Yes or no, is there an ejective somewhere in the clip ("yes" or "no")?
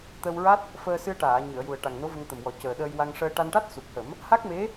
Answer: no